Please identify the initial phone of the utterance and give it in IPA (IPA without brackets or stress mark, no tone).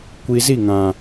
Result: kʷ